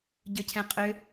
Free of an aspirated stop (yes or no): no